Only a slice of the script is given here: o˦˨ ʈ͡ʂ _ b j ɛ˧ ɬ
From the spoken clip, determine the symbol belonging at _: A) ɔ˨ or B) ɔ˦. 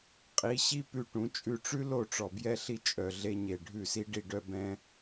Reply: A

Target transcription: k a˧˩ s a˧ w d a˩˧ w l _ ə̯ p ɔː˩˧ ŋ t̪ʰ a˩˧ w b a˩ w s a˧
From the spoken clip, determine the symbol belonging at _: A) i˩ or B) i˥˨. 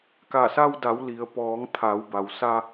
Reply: A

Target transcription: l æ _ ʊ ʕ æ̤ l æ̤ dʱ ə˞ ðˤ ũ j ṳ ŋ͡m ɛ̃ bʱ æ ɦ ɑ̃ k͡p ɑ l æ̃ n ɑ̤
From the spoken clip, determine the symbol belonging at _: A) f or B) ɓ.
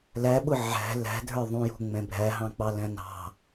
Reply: B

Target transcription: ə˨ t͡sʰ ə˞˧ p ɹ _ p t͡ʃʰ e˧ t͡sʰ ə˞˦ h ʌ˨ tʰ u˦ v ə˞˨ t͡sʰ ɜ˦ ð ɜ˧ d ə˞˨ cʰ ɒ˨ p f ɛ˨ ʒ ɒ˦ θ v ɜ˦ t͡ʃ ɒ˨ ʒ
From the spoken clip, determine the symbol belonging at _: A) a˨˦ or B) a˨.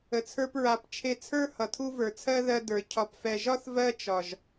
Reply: A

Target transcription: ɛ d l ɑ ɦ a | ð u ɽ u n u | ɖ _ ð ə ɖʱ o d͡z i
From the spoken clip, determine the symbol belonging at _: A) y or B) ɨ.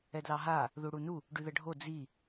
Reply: A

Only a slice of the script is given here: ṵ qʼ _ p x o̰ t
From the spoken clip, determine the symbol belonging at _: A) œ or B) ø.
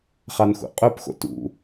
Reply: A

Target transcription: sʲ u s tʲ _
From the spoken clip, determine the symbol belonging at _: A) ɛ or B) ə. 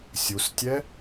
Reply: A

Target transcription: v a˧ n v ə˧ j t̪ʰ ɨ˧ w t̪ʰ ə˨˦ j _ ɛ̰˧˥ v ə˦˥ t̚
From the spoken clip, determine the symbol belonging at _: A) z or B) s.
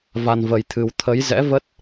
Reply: A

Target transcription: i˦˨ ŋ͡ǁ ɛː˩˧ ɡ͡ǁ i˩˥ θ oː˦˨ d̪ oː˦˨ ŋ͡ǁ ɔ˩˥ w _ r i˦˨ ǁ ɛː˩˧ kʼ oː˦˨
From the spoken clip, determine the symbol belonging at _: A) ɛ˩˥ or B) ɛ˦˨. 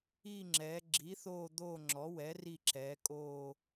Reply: A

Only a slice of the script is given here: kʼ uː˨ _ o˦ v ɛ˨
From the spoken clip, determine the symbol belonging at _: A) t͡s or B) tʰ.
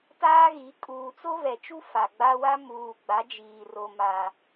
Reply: A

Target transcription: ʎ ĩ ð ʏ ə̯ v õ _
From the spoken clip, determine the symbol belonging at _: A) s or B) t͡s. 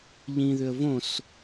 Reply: A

